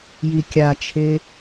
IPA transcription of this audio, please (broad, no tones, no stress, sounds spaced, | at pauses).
j i kʲ a t͡ʃʰ e